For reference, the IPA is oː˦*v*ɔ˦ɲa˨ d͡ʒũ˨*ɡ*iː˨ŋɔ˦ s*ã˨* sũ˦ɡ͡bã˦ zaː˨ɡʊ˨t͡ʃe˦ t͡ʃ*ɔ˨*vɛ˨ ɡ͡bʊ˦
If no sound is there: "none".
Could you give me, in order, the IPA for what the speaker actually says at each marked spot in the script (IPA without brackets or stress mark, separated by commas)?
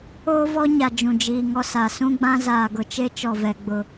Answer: v, d͡ʒ, a˨, ɔ˨